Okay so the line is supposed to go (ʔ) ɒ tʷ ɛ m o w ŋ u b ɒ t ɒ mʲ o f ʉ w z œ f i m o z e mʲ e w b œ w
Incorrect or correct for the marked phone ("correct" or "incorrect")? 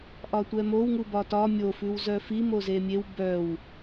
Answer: correct